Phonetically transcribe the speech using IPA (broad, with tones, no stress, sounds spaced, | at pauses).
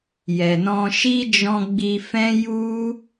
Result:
j ɛ˨ n ɔ̃˧ ʃ i˦ d͡ʒ ɔ̃˧ ɡ͡b i˧ f ɛ̃˦ j u˦